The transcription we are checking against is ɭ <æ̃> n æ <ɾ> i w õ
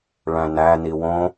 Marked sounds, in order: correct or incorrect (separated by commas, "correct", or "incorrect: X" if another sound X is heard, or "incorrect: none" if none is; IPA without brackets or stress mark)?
correct, incorrect: n